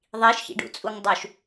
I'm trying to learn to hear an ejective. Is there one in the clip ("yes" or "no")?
yes